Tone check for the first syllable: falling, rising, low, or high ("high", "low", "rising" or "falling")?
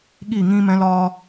falling